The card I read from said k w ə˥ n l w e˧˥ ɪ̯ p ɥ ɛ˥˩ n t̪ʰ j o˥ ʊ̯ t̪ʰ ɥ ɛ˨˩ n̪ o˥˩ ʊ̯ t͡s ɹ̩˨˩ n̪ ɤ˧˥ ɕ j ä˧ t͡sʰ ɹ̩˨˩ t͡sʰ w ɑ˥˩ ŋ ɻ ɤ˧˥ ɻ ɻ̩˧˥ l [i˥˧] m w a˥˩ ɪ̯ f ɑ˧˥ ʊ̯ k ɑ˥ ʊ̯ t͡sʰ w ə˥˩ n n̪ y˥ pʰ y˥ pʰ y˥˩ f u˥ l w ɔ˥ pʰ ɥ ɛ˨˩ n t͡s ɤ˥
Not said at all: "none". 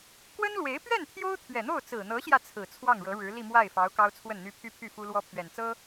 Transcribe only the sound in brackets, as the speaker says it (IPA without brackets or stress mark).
i˥˧